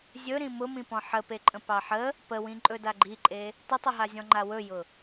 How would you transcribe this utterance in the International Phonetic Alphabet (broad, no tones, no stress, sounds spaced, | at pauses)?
zʲ ɵ ɾ ĩ m ʊ m ĩ p ɔ̃ ħ ə p e ǃʼ ə̃ p ɑ ħ ə | p ə w ĩ ǃʼ ɵ d a ɡ͡ǃ i ǃʼ e | t ə tˤ ʏ ɦ a zʲ ɔ̃ ŋ͡ǃ a w ɵ j ʊ